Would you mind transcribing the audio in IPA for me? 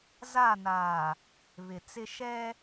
z a˦˨ n aː˨ | β ɪ˨ t͡s ɪ˦ ʃ ɛ˦

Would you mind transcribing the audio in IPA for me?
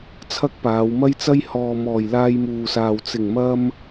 t͡sʰ ɐ˥ k̚ p aː˨˧ w m ɐ˥ j t͡s ɐ˥ j h ɔː˨ m ɔː˨˩ j l aː˧ j m uː˨ s aː˨ w t͡s ɪ˨˩ ŋ m ɐ˧ m

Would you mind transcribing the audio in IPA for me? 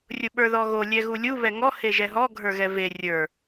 rʲ ʊ ɓ ə˞ ð ɔ ɣ o lʲ ɛ ɣ u lʲ u β ɛ ŋ ɔ h e ʒ ɛ ɦ ɔ ɡʱ ə˞ ɣ ɛ v e rʲ ə˞

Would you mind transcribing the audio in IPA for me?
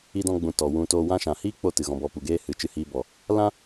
i˧ d ɔ̃˧ ɡ͡b ũ˨ t ɔ˨ w ũ˧ t oː˧ w ã˦ ʃ ã˨ h iː˦ k͡p o˧ t ɨ˨ ɣ ɔ̃˧ b ɔ˧ p u˨ ɡ eː˦ h ɨ˨ t͡ʃ ɨ˧ h iː˧ b ɔ˨ | l ã˦

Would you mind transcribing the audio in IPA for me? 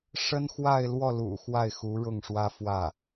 ʂ ə˥ n x w a˥˧ ɪ̯ l w ɔ˥˩ l ṵ˨˩ x w a˥˩ ɪ̯ x u˧˥ ɻ ʊ˥˩ ŋ ʂ w ä˥ f w ä˥˩

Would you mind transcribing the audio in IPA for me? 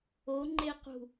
o ŋ͡ǃ e q ṳ

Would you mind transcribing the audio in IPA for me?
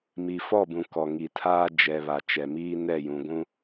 m i˨ f ɔ˦˨ b ũ˨ k ɔ˨ ŋ i˨ tʰ aː˦ d͡ʒ ɛ˨ β a˨ t͡ʃ ɛ˨ m iː˦ n ɛ˦˨ j ũ˨ ɡʷ ũ˦

